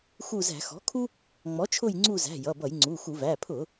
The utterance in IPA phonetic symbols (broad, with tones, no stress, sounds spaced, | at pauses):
x u˦˨ z æ̤˧˩˧ x ɔ̤˩˥ kʰ u˦ | ŋ͡m ɔ˩˥ t͡ʃʰ ʊ˦˨ j ŋ͡ǀ u˦˨ z æ̤˩˧˩ j ʌ˩˧˩ b ʌ˧˩˧ j ŋ͡ǀ u˩˧˩ x u˧˩˧ v æ˩˧˩ pʰ ʊ˧˩˧